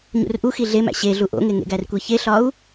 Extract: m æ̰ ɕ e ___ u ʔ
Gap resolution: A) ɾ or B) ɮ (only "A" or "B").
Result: B